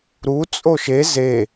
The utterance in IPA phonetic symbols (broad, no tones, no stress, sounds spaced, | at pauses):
ɾ u t͡sʼ o ʃ e z e